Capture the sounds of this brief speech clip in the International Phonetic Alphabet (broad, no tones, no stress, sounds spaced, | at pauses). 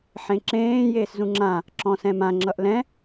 ħ ẽ ǁ ẽː j eː s z ũ ŋ͡ǁ ã | ǁ ɔ̃ s ɛ̃ m ã ŋ͡ǁ ʌ ʔ l ɛ̃